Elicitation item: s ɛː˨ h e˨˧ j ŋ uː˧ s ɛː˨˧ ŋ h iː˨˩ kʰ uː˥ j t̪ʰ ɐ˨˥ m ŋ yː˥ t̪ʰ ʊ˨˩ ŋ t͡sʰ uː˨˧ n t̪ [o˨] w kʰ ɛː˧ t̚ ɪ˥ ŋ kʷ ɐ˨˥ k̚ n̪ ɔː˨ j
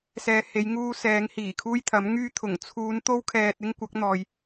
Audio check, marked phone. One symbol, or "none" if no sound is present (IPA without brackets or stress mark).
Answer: o˥